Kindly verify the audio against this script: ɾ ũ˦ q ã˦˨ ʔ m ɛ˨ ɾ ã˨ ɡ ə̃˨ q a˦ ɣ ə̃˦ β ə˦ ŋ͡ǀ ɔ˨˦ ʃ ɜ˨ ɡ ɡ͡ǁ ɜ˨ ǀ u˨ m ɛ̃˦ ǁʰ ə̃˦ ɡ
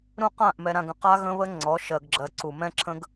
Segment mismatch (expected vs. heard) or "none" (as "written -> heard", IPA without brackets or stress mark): none